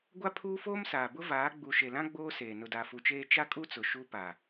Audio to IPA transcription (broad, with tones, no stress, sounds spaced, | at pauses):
ɡʷ a˦ pʰ uː˦ f oː˦ m s aː˨ b ʊ˦ v aː˨˦ ɡ͡b u˨ ʃ e˨ l ã˦ ɡ͡b oː˦ s eː˨ n ʊ˨ d a˨ f u˨ t͡ʃ eː˦ t͡ʃ a˦ kʼ u˦ t͡s ʊ˨ ʃ u˦ p a˨